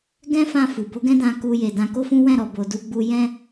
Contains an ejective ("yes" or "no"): no